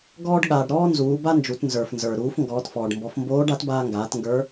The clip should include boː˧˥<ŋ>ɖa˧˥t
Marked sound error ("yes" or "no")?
yes